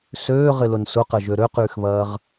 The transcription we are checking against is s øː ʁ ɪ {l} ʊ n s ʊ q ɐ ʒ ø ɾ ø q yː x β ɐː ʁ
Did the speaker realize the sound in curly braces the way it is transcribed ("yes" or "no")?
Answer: yes